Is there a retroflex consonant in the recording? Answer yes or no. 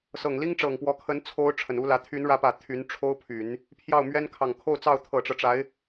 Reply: yes